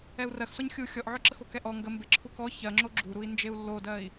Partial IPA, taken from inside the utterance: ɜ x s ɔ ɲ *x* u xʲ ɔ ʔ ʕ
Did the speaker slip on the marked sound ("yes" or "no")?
yes